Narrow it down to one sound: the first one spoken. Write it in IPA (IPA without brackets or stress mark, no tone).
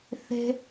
θ